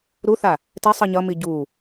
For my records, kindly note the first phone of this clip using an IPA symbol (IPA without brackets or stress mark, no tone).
ɾ